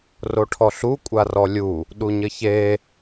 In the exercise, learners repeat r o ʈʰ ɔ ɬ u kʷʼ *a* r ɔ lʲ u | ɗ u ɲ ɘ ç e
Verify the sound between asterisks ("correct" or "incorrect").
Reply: correct